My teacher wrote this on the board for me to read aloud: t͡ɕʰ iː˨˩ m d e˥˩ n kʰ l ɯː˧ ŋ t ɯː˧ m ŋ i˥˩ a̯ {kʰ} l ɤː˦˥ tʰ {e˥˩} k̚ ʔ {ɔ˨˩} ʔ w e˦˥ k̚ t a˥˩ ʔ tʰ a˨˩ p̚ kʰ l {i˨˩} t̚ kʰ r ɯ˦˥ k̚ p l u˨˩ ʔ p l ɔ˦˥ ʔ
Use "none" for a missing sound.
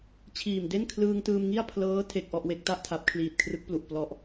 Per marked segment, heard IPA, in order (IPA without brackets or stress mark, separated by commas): pʰ, e˥˩, ɔ˥˩, iː˨˩